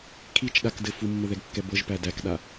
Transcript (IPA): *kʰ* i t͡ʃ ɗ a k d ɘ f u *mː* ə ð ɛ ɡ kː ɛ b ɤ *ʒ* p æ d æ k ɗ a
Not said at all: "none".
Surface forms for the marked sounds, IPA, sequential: kʰ, mː, ʒ

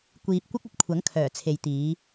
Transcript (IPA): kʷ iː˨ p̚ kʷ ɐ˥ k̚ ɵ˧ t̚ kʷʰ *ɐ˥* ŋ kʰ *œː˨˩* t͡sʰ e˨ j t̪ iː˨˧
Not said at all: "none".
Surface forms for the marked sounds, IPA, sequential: ɐ˨˥, œː˨˩

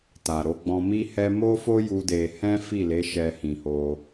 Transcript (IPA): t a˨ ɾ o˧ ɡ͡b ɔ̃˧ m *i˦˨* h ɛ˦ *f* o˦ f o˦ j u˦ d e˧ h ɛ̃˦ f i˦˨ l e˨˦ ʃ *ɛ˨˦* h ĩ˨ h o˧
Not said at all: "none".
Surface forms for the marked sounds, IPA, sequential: i˦, m, ɛ˧

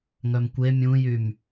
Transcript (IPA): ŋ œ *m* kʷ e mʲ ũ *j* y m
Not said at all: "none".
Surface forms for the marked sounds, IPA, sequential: m, j

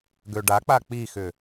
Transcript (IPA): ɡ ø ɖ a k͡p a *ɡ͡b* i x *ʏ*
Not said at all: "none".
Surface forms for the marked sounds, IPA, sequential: k͡p, ʏ

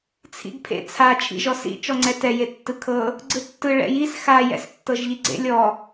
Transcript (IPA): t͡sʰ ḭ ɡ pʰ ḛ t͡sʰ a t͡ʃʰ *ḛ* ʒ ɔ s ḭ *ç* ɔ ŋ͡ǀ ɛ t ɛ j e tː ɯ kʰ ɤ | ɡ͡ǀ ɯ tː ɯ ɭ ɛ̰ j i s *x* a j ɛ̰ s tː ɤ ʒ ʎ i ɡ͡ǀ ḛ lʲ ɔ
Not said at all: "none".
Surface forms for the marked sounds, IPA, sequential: ḭ, t͡ʃ, x

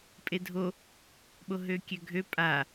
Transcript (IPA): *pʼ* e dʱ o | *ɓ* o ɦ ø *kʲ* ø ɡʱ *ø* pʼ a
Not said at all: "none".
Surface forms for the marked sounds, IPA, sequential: pʼ, ɓ, kʲ, ø

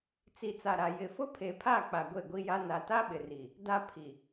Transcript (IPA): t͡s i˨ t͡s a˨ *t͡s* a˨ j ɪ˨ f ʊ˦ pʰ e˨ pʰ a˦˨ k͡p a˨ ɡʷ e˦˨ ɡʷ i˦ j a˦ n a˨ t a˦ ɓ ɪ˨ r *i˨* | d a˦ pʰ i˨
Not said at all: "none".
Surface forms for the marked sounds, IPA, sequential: ɾ, i˨

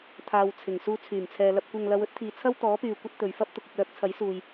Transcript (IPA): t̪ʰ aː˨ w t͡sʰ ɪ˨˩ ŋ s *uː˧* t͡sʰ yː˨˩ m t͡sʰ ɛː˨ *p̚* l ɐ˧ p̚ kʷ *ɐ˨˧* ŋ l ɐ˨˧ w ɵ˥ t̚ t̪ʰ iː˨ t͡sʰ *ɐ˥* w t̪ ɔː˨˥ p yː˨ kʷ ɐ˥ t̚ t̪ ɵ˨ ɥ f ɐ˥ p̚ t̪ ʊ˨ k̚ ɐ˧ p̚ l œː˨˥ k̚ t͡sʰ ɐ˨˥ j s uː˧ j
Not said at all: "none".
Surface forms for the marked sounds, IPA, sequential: uː˧, none, ɐ˧, ɐ˥

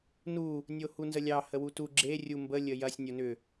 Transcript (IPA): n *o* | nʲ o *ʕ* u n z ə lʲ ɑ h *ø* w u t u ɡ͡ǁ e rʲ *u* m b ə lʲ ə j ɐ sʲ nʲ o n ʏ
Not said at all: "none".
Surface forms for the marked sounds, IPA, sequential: u, h, ə, u

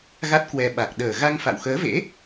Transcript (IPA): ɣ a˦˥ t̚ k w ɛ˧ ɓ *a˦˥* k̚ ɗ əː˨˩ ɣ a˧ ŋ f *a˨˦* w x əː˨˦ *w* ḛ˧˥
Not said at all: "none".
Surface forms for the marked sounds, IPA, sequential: a˨˩, a̰˧˨, v

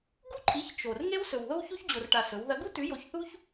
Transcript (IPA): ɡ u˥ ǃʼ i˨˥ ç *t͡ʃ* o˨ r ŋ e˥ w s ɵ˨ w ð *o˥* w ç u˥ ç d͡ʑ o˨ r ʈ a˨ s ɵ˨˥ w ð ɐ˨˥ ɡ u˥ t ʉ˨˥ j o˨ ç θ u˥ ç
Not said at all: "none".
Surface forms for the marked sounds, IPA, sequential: t͡ʃ, o˥

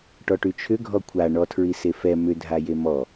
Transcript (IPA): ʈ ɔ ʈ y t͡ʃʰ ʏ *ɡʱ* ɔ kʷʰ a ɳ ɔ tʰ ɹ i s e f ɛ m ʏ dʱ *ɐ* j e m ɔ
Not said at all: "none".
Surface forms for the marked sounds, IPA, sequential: ɡʱ, a

